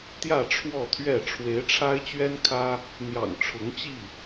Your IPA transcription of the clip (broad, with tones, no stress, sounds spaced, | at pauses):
t̪ j ä˥˨ ʈ͡ʂʰ w ɔ˥˨ t̪ʰ ɥ ɛ˥˨ ʈ͡ʂʰ w e˨˦ ɪ̯ ʈ͡ʂʰ a˦ ɪ̯ t͡ɕ ɥ ɛ˦ n kʰ ä˦ | n̪ j ɑ̰˨˩ ŋ ʈ͡ʂʰ ʊ˨˦ ŋ t͡ɕ i˥˨